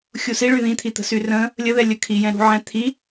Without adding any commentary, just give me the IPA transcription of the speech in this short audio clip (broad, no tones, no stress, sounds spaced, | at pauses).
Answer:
xʲ u s i ɭ y ð ĩ t̪ʰ i t̪ ə̤ s y r ə̃ | lʲ ə ð ɛ lʲ ə kʰ i j ɛ̃ ɾ ṳ ʕ ɛ̃ t̪ʰ i